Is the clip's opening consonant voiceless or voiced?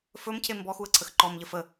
voiceless